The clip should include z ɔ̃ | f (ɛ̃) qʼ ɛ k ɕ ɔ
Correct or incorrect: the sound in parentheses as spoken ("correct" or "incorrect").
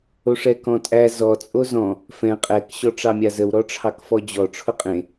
correct